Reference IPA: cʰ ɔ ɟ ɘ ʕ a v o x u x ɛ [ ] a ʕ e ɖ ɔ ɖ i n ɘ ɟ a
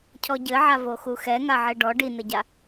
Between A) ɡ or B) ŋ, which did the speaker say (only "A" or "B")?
B